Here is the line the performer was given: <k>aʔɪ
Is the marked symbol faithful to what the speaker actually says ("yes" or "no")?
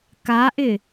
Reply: yes